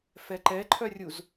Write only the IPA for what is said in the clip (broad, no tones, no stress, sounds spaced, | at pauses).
f ɛ ǃ ɛ ǃʰ œ rʲ u z